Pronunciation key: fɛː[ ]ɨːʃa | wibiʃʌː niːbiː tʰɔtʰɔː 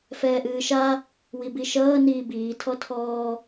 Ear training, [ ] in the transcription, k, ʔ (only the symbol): ʔ